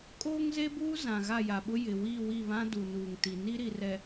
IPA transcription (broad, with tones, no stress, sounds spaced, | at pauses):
kʼ oː˦ ŋ z e˦ b uː˦ z ã˨ ɣ a˦˨ j a˨ ɓ ʊ˦ j ɪ˨ w iː˦˨ w i˦˨ β ã˦ d u˨ n uː˨ ŋ t i˨ n i˦ ɾ i˨ r ɛ˨